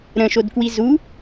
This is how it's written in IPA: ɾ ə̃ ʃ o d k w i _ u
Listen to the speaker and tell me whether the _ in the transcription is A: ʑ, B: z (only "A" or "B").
B